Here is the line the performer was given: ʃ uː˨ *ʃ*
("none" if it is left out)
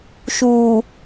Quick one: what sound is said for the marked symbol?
none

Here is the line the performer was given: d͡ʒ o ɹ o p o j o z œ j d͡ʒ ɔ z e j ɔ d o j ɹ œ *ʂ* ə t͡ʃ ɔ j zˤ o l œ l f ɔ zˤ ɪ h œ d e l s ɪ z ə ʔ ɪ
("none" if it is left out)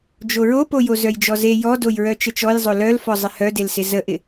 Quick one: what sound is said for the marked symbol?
t͡ʃ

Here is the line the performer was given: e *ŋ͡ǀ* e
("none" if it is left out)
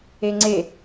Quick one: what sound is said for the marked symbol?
ŋ͡ǀ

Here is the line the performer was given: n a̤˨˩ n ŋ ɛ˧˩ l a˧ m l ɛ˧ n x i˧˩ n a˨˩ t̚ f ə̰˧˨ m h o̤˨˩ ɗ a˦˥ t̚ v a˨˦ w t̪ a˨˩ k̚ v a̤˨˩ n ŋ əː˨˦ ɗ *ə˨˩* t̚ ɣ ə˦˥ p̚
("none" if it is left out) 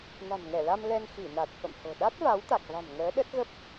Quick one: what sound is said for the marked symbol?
ə˦˥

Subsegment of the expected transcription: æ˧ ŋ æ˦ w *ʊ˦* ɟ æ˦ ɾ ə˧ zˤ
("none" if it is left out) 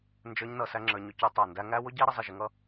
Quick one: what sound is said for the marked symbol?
ʊ˦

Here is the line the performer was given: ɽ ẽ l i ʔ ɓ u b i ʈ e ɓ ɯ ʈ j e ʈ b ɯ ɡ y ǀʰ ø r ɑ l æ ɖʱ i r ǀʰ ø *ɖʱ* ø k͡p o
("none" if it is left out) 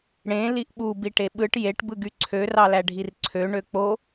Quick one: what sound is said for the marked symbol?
ɳ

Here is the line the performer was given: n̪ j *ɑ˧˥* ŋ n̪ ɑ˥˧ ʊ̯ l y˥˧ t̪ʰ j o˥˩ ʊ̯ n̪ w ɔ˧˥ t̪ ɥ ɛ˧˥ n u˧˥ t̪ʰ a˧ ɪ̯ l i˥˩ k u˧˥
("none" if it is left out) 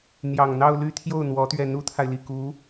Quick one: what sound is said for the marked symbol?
ɑ˨˩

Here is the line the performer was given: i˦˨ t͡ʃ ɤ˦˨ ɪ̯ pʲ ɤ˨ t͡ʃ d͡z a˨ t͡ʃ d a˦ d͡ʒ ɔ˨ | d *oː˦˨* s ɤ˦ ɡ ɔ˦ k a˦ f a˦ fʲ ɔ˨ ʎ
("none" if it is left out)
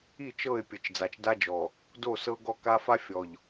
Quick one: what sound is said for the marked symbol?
o˦˨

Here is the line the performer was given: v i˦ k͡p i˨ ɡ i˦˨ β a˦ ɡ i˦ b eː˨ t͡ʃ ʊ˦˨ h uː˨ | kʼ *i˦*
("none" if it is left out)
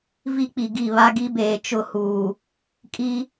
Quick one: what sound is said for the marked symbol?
i˦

